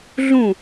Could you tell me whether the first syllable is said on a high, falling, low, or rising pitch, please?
falling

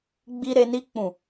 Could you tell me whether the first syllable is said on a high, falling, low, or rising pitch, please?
high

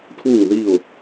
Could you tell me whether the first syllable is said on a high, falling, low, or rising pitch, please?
falling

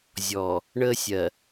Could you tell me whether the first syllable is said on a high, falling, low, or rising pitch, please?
low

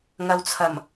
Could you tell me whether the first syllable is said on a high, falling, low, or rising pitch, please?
low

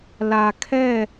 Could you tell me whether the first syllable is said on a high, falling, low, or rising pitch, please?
low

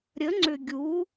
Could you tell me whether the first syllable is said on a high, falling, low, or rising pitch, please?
rising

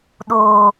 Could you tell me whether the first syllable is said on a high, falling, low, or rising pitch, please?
low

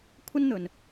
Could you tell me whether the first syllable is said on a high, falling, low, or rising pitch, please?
high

